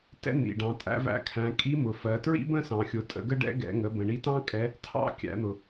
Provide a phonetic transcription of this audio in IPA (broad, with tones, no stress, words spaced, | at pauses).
tɛ̰˥n̪ḭ˩ɖɑ̃˩˧ tʼæ̰˧væ̰˧˥kʰæ̃˩˧ kʼi˧˥mʊ˩ fɜ˩˧tɹḭ˥bə̃˥ sɑ̃˩xʲʊ˩˧tʼə̰˩˧ɡə˥ ɖɛ̰˧˥ɡɛ̰˩˧ŋə˩˧ bə̃˩ɳi˧˥tɑ̃˥ kʼɛ˧˥ | tʰɑ̰˥ kʲæ̰˩˧n̪ʊ˩